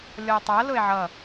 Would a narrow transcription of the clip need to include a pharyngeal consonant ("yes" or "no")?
yes